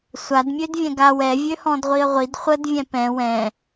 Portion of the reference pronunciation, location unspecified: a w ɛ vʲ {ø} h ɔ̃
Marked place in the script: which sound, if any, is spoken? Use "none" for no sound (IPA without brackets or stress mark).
ø